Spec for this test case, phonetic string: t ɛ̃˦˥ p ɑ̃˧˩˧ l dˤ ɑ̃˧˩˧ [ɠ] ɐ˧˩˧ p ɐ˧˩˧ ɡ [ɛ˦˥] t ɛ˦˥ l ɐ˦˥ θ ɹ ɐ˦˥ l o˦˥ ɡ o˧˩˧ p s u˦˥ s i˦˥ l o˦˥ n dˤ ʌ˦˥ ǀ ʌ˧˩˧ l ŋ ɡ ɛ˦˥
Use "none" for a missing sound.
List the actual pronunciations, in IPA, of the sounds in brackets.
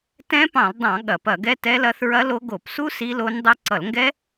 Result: ɠ, ɛ˦˥

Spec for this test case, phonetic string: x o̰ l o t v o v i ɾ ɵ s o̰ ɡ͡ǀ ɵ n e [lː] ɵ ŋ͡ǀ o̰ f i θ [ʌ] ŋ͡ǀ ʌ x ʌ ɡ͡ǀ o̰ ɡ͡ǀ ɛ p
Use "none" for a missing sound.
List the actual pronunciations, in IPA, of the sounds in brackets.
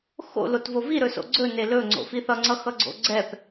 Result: l, ʌ

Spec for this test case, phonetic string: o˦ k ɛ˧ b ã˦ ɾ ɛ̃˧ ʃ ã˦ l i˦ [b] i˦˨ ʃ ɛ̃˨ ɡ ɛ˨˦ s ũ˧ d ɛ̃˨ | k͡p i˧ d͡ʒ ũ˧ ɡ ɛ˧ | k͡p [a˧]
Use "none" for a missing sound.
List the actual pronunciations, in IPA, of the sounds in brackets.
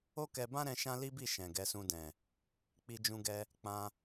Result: b, ã˧

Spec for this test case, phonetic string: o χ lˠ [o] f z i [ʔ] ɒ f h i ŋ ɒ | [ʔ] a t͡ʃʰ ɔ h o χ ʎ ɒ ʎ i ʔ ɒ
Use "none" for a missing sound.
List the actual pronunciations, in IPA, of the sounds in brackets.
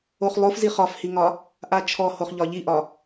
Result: o, χ, ʔ

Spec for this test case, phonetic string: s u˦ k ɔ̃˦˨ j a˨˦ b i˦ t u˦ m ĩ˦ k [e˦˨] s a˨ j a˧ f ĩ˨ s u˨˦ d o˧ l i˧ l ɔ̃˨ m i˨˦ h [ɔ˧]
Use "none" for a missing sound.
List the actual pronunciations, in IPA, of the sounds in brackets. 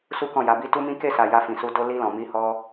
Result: e˦˨, ɔ˧

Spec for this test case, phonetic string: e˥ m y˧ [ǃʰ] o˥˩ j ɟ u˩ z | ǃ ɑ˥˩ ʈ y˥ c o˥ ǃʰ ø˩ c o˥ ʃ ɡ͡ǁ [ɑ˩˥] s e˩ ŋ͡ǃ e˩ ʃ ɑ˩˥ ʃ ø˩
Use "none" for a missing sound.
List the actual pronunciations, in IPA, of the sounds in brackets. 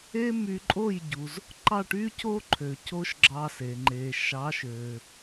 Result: ǃʼ, ɑ˧

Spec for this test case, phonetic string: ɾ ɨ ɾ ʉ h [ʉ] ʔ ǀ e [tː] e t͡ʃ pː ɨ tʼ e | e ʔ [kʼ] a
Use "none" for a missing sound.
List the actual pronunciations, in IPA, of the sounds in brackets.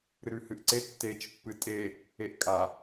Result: ɨ, tː, kʼ

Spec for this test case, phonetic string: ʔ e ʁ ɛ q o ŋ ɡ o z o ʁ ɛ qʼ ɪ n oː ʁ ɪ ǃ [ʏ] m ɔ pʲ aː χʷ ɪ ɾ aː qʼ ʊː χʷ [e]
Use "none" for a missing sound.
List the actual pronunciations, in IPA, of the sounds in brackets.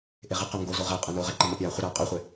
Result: ɪ, e

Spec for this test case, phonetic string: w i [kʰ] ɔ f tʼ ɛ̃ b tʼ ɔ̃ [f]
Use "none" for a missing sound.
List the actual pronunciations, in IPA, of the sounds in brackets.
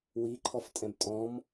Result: ǃʰ, m

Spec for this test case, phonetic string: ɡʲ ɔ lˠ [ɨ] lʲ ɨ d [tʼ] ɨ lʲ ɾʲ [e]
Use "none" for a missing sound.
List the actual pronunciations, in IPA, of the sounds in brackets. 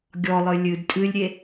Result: ɨ, tʼ, e

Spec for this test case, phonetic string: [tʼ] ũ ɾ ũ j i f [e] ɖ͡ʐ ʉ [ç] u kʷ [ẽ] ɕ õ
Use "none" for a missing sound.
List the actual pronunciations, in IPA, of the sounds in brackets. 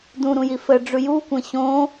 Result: d, ɘ, j, ẽ

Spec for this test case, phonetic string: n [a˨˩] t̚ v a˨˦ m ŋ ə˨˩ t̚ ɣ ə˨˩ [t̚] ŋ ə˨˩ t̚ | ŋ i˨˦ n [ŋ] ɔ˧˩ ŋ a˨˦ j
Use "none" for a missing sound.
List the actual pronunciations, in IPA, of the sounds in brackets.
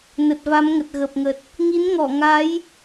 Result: ə˨˩, p̚, ŋ

